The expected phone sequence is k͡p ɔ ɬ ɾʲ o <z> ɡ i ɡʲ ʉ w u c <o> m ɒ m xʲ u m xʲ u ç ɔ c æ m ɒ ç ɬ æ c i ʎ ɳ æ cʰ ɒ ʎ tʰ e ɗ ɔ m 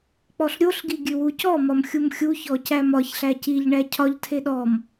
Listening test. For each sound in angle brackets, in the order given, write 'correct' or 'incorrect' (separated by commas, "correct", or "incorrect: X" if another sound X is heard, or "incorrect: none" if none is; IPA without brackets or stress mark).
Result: incorrect: ɬ, incorrect: ɔ